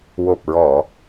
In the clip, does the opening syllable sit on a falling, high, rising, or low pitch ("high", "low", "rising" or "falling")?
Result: low